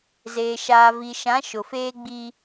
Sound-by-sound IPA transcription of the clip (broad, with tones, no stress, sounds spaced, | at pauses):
z eː˨ ʃ aː˨ v i˨ ʃ ã˨˦ ʃ ʊ˨ f eː˦ ɡ͡b i˦